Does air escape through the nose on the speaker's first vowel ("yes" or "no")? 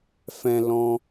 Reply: yes